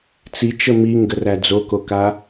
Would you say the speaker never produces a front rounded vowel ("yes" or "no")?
yes